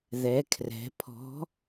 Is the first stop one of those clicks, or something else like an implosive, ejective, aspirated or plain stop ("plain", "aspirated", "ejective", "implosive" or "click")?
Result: aspirated